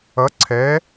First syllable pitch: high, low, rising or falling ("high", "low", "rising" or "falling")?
rising